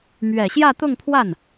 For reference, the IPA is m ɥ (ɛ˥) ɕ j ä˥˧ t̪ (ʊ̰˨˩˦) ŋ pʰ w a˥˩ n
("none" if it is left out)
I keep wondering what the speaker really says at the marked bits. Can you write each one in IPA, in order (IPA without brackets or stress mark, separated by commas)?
ɛ˨˩, ʊ˥˧